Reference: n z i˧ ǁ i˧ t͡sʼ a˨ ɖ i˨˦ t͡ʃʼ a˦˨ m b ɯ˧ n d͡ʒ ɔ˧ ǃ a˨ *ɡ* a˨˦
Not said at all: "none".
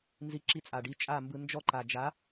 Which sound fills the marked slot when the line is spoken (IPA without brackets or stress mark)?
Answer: d͡ʒ